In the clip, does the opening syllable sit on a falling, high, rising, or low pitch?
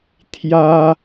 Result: high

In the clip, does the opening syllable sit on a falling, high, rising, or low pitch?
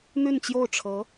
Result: falling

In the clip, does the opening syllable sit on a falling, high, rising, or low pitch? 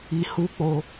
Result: low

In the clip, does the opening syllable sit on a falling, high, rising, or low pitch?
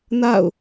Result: falling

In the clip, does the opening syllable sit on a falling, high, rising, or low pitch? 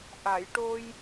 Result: low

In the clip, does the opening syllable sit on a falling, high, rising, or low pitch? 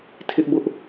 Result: high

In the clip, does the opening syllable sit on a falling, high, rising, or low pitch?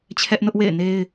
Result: high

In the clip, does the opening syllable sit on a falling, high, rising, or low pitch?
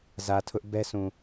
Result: low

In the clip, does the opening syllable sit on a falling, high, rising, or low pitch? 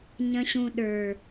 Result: low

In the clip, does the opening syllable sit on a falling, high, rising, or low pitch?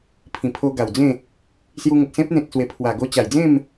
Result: low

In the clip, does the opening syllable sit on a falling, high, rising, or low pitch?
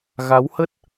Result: rising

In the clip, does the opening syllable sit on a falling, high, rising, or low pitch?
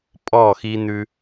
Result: falling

